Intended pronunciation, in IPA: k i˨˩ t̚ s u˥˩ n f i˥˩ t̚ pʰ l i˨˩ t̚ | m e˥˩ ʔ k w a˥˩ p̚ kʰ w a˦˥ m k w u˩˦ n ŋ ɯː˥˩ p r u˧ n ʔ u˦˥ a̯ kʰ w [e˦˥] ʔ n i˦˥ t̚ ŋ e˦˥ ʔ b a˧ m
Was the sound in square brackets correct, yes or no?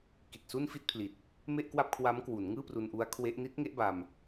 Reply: yes